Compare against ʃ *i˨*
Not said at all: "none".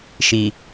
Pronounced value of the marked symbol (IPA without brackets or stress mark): i˨